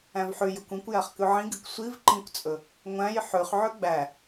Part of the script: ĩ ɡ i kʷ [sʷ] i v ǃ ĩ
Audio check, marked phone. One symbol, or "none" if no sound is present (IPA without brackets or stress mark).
sʷ